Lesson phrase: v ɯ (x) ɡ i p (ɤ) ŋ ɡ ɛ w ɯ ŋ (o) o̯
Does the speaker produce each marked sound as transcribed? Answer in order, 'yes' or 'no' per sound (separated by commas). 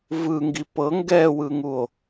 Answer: no, yes, no